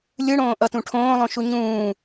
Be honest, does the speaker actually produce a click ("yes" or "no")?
no